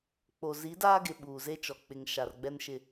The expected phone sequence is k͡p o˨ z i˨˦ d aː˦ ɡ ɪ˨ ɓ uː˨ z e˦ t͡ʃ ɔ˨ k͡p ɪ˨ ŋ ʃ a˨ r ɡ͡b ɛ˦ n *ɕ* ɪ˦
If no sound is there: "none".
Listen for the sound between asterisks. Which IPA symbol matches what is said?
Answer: ʃ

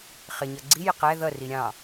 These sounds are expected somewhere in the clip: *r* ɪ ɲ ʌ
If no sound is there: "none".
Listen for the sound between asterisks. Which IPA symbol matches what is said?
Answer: χ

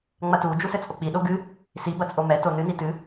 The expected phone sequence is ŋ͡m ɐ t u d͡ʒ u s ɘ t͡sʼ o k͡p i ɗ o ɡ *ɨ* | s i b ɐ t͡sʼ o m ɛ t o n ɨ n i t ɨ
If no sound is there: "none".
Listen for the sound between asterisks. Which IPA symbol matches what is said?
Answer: ɨ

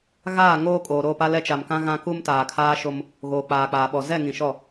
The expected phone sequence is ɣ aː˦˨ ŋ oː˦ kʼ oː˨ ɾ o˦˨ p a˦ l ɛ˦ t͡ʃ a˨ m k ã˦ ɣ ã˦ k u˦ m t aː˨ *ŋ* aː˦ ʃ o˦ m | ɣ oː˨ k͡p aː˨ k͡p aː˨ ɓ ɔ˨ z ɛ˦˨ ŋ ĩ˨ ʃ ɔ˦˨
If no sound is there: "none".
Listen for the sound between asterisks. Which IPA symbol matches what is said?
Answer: kʰ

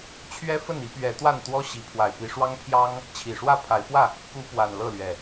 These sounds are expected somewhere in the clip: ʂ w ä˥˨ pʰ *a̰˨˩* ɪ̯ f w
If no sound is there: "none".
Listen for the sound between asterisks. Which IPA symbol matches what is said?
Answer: a˨˦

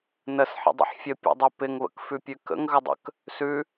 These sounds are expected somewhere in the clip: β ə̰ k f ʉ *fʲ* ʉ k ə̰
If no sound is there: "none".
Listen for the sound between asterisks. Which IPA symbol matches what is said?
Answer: pʲ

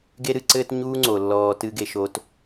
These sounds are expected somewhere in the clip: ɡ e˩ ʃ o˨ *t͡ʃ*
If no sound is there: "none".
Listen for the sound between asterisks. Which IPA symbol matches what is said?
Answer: t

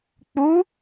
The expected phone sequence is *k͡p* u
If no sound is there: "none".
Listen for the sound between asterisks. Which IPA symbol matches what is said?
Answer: k͡p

